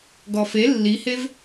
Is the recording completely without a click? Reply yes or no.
yes